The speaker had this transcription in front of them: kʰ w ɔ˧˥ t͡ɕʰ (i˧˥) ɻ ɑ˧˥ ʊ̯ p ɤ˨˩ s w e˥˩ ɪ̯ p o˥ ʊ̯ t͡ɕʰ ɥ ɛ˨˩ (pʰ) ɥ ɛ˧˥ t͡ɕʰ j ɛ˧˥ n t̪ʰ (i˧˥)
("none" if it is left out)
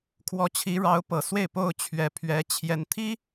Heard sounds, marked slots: i˧˥, pʰ, i˥

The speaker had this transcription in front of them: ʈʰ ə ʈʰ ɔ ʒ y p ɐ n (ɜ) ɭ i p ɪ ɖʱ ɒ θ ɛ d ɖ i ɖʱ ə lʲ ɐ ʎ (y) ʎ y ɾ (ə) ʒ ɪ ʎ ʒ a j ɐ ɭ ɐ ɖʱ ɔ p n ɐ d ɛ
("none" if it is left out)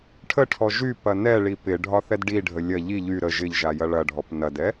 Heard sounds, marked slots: ɛ, i, ə

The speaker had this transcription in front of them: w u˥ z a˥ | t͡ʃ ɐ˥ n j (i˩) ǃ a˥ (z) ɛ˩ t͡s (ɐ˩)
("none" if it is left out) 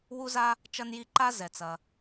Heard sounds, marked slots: i˥, z, ɐ˩

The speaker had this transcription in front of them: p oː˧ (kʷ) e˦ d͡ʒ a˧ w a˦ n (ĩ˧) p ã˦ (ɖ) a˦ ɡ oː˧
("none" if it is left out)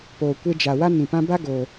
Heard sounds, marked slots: kʷ, ĩ˧, b

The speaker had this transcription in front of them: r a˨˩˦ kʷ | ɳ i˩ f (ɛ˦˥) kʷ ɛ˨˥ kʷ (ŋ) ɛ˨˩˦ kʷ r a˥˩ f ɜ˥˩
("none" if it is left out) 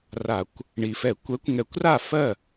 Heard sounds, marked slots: ɛ˨˩˦, ŋ

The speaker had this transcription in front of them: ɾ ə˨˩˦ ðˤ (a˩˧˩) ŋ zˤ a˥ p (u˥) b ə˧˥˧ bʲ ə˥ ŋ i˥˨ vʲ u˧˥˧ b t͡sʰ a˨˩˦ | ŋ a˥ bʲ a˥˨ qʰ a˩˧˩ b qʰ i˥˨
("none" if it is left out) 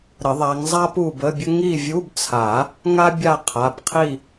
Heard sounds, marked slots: a˨˦, u˥˨

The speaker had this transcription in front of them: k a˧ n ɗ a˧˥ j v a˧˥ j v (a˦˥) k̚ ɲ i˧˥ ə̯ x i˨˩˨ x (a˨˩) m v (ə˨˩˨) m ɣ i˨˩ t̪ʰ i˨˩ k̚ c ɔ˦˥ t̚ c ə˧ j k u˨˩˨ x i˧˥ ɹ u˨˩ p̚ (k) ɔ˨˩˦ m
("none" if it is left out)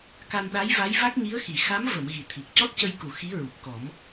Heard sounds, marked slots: a˦˥, a˧˥, ə˨˩˨, k

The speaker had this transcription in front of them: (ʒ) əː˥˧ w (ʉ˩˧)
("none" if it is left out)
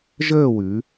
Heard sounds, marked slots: ʒ, ʉ˩˧

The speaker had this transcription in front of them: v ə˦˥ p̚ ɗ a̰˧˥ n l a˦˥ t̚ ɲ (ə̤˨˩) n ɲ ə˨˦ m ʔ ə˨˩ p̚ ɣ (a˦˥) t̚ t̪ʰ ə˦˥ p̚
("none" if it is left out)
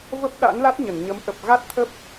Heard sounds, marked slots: ə˧˩, a˦˥

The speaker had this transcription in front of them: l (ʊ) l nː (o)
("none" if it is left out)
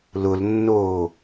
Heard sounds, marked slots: ʊ, oː

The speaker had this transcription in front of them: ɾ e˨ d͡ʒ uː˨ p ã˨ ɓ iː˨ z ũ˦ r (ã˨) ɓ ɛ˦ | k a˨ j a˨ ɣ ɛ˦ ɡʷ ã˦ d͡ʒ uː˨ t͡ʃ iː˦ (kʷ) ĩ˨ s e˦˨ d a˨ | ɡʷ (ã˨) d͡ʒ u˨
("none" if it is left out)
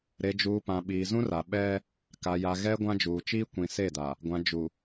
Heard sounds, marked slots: a˨, kʷ, ã˨

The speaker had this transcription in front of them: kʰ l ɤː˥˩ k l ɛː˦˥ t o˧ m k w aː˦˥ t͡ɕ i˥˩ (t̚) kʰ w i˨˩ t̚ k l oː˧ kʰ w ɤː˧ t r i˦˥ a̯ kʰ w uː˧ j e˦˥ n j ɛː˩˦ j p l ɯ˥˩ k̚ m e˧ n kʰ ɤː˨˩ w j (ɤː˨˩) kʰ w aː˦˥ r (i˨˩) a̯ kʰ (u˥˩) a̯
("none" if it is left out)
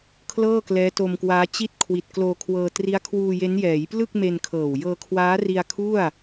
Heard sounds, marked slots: t̚, ɤː˧, i˧, u˥˩

